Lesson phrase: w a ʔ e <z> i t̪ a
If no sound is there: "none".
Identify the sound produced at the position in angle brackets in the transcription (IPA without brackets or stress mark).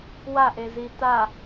z